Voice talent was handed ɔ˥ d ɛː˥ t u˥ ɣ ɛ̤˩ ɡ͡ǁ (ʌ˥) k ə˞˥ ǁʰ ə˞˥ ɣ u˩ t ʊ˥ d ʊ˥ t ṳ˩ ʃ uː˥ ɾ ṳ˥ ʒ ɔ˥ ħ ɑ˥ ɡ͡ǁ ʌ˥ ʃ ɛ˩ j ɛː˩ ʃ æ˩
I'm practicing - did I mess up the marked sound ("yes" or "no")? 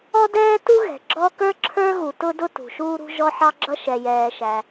yes